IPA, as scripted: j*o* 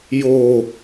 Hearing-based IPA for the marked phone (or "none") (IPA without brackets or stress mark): o